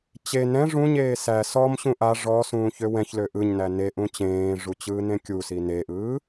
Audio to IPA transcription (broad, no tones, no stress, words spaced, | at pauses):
t͡ɕe nɛ̃ ʐũɲeː sæ sɔmɕũ ʔa ʐɔsũː çøwɛ̃çlø ʔɯɲnæ ne ʔũt͡ɕẽːʐu t͡ɕɯːnẽkʲusi neʔɯː